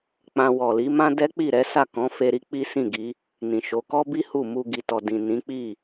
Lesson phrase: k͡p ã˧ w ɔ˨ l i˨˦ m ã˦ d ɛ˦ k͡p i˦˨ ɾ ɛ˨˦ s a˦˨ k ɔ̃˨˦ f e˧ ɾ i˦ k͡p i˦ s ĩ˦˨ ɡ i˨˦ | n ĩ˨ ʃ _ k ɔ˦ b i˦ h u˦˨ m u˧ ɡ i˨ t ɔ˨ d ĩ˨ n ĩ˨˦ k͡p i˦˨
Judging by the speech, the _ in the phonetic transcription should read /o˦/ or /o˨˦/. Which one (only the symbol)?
o˨˦